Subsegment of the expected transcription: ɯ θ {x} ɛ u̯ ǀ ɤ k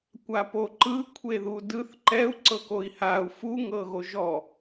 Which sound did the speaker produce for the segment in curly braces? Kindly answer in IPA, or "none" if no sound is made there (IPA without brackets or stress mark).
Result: ǃ